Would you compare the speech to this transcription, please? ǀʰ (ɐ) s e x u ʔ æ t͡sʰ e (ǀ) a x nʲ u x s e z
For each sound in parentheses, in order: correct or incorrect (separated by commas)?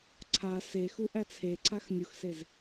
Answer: incorrect, correct